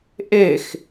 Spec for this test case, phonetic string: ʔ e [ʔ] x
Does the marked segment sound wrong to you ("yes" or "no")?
yes